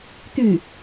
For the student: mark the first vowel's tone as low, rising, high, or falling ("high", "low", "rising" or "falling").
falling